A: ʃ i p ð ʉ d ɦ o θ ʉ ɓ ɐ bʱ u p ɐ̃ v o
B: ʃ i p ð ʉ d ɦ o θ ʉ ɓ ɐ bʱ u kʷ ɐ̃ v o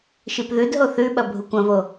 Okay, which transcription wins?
B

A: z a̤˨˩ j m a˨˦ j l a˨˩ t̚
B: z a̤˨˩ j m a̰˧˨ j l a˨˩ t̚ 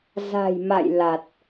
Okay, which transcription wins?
B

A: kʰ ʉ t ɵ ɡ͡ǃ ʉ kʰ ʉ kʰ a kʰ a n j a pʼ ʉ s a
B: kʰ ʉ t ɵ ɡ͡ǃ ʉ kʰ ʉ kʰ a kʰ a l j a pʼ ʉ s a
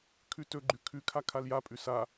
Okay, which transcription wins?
B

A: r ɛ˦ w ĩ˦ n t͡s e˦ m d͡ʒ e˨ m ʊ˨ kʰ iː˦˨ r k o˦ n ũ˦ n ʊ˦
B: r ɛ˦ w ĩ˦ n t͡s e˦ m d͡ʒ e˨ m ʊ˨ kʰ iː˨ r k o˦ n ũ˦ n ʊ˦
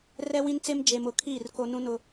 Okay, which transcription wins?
A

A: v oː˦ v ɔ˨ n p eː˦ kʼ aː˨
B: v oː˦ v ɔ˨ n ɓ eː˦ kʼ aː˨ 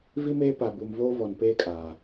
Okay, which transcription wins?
A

